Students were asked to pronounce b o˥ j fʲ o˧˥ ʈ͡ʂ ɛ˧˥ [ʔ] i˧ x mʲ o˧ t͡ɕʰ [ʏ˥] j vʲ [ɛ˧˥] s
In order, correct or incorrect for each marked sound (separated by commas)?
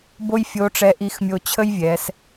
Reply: correct, incorrect, incorrect